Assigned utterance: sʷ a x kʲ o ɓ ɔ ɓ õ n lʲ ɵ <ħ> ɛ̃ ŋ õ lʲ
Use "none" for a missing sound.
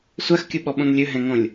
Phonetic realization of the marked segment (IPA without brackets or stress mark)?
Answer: ɦ